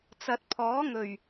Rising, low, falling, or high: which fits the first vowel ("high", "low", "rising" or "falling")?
low